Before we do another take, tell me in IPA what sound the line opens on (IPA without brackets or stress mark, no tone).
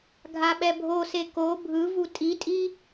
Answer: ɡʱ